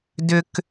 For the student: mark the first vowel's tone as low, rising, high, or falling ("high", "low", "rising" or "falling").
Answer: high